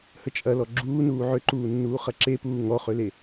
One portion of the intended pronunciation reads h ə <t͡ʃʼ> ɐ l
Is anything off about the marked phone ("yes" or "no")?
no